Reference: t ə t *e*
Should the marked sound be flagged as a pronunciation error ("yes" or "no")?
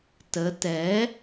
yes